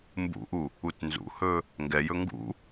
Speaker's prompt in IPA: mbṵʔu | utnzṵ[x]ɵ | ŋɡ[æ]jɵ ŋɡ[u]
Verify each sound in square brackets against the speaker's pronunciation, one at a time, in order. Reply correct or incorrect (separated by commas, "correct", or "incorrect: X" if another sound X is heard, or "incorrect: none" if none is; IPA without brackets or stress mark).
incorrect: h, incorrect: ɛ, incorrect: ṵ